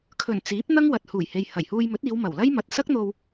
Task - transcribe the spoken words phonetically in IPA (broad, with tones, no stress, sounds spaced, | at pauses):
kʰ ɵ˨˩ n t͡s iː˨˥ p̚ n̪ ɐ˥ ŋ w ɐ˨ t̚ h uː˨˩ j h e˨ j h ɐ˨˩ j h uː˧ j m ɵ˨˥ t̚ iː˨˧ w m ɐ˨˩ w l ɐ˥ j m ɐ˨ t̚ s ɐ˥ k̚ n̪ o˧ w